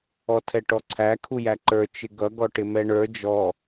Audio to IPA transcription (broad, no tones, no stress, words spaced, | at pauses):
ɔtʰɛʈɔǀʰæ kʰujæǃə˞ t͡ʃɪɡʌ ɡɔʈɪmɛɳə˞ d͡ʒɔ